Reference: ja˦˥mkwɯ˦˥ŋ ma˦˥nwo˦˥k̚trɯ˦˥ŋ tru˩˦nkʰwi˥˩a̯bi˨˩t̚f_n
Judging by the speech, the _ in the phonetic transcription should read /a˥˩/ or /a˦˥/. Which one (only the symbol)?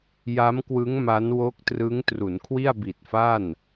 a˥˩